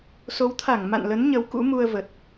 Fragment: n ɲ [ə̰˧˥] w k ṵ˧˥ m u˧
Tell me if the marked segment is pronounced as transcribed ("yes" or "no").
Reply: no